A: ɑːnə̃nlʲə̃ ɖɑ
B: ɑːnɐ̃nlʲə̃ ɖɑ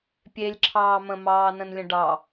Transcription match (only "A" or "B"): A